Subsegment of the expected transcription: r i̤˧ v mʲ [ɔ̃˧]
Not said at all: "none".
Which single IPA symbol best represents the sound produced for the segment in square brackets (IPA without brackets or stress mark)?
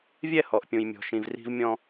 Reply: ɔ̃˧